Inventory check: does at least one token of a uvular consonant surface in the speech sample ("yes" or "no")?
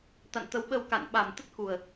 no